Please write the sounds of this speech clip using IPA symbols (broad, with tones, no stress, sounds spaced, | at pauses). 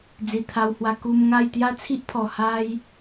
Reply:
d͡z i˨˩ t̪ʰ a˧ w h w a˧ k u˧ m ŋ a˥˧ j t̪ j a˦ t͡sʰ i˦ ʔ pʰ ɔ˨˩ h a˦ j